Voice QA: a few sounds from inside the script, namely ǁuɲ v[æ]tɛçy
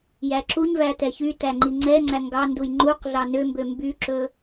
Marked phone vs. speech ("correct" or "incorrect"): correct